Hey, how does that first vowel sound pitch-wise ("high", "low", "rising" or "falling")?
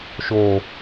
low